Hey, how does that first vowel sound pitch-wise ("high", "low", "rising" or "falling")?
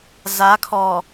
rising